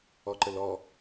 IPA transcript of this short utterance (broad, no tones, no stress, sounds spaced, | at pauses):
ɔ ǃ ə l ɔ